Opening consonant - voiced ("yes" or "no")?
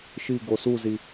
no